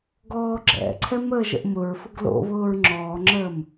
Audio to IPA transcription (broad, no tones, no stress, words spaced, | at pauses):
ɡɔːɡ͡ǁɛ̰ǀʰɛm əːʒə̰ʔmʊɹfʊɡ lo̰βʊːɹ ŋ͡ǁɔːŋ͡ǁəːm